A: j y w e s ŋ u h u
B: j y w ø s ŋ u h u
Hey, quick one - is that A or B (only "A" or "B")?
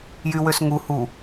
B